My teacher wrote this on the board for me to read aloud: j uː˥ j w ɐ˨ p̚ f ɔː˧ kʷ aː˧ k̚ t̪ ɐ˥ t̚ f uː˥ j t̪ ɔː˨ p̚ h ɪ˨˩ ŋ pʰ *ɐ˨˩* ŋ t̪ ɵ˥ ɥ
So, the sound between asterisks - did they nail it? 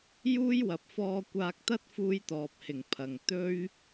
yes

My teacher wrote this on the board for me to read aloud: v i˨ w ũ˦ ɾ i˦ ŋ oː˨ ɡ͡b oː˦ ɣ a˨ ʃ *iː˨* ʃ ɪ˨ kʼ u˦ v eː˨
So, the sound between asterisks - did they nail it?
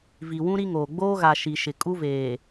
no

